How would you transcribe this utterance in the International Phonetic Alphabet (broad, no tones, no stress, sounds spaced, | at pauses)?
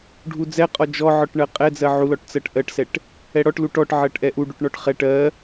ɖʱ u d͡z ɛ qʼ ɔ d͡ʒ ɔ ʕ ɔ ʈ ɳ ɜ qʼ ɛ d͡z ɜ ʕ u l ɔ ʈ t͡s ɜ ʈ ʔ ɜ ʈ s ɛ ʈ | ɛ ɽ ɔ ʈ l u ʈ ɔ ʈ ʕ ɜ ʈ ʔ ɛ ʔ u ɖ u ʈ ɳ ɔ ʈ χ ɛ ʈ ɜ